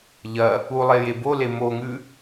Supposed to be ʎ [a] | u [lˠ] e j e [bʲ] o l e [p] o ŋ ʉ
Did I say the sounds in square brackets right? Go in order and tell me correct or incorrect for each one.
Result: incorrect: ɐ, correct, incorrect: b, incorrect: m

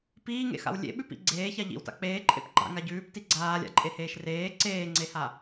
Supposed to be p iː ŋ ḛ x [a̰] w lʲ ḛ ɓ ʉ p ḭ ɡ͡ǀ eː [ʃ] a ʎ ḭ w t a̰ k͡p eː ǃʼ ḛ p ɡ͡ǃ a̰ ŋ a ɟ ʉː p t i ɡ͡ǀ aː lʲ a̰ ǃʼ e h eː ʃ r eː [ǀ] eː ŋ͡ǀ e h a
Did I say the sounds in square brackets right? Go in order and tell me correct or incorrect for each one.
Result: correct, incorrect: ç, correct

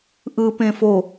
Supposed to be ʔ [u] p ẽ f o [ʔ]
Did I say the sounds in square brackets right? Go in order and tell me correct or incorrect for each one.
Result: incorrect: ɯ, incorrect: none

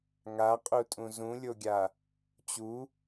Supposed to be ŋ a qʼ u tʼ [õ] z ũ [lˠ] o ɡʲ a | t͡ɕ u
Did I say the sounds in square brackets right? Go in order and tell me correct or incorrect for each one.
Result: incorrect: ũ, incorrect: lʲ

